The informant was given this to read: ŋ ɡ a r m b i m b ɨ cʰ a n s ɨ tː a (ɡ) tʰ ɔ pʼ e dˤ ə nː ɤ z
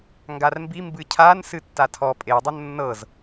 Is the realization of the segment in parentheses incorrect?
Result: yes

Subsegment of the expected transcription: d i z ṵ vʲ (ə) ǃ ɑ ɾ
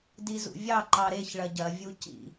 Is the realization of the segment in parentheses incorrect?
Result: yes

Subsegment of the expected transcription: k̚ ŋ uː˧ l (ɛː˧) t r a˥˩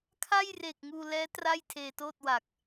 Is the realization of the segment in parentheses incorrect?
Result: yes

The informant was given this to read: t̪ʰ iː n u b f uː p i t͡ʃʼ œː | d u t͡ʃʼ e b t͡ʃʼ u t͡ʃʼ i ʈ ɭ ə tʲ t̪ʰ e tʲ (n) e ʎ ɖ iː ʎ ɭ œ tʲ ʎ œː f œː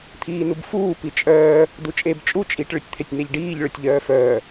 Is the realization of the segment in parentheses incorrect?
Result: no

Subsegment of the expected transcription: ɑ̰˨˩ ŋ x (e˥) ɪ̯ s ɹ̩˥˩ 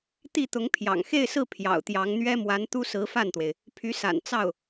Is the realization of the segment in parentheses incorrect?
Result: yes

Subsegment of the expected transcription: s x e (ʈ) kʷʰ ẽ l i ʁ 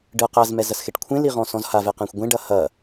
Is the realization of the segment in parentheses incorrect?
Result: no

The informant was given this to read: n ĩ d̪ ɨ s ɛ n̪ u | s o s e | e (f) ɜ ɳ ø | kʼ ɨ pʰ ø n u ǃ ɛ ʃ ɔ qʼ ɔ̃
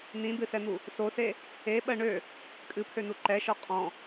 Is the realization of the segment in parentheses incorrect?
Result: yes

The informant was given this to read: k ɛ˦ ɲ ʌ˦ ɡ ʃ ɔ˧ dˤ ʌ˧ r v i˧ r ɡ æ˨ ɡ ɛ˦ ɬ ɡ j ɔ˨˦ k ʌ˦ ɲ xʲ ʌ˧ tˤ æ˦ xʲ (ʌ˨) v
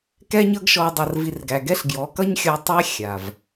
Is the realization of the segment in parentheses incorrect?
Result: yes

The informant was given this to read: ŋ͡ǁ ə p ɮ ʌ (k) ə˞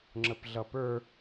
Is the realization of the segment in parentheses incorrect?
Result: yes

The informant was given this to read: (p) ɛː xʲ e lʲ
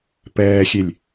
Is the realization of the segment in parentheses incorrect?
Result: no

